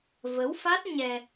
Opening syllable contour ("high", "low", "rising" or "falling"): rising